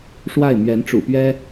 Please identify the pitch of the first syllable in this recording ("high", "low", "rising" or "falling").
falling